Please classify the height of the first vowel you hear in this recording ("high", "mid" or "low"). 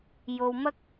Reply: mid